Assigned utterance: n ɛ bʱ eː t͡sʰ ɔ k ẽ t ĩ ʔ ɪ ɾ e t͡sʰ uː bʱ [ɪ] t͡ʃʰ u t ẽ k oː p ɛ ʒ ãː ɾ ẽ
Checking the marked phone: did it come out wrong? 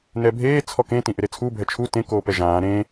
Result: yes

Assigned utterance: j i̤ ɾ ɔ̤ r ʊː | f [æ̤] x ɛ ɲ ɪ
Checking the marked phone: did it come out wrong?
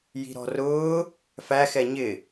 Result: yes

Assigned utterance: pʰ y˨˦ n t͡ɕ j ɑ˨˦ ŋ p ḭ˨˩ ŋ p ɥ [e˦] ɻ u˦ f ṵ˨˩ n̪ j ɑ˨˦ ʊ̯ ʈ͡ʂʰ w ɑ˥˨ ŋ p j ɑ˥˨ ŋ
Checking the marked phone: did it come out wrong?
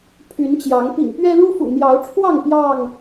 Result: yes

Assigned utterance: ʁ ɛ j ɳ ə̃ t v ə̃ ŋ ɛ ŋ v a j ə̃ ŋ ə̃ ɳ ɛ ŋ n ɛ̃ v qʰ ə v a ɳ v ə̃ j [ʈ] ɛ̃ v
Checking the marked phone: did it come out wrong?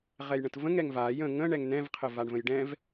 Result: yes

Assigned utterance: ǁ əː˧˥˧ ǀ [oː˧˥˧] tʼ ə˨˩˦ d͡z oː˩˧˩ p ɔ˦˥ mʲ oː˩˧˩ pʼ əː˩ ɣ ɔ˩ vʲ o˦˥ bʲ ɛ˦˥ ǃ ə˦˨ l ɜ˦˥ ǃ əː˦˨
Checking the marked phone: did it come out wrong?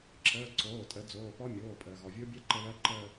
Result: yes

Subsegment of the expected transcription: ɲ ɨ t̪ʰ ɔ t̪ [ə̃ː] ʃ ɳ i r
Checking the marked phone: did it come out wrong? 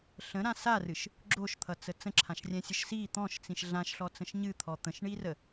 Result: yes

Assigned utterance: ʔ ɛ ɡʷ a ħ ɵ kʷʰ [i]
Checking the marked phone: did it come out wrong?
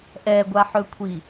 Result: no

